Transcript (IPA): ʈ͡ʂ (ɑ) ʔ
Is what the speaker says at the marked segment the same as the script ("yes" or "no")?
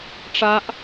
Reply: no